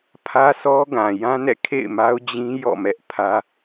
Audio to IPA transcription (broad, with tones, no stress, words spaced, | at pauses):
pʰä˦sʰɔ˦ɡã˨ jã˦nɛ̰˦˨kʰḛ˦˨ɪ̯ma˦ʊ̯ d͡ʑĩ˦ jɔ̰˦˨mɛ˦ʔpʰä˦